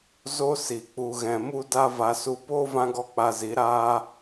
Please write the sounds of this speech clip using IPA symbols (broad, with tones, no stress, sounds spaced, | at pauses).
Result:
z o˦ s i˨ k͡p u˨ ɣ ɛ̃˨ m u˦ d a˦ v a˧ s u˧ p oː˦ v ã˧ ɡ ɔ˧ k͡p a˧ z i˨˦ ɾ aː˦